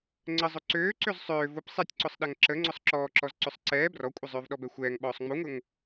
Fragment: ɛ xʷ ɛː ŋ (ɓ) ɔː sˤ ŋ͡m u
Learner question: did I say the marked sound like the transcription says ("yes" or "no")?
yes